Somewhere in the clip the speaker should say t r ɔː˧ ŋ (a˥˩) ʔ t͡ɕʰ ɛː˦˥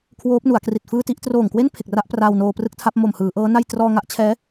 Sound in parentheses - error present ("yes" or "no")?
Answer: no